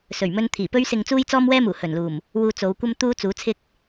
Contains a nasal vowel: no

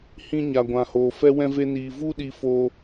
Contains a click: no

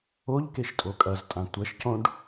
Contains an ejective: yes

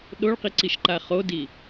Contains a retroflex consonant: yes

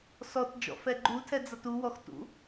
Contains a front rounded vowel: no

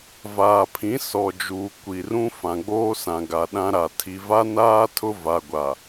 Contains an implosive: yes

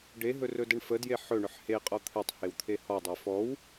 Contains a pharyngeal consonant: yes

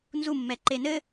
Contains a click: yes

